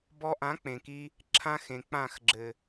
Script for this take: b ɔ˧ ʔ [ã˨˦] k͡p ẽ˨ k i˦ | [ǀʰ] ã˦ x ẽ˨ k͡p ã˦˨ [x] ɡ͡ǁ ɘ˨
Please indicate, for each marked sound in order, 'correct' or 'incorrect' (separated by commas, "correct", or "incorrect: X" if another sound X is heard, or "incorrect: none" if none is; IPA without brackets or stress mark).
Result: correct, incorrect: ǁʰ, correct